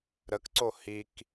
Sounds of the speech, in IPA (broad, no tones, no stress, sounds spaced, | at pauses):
ɾ ə k ǀ o h i k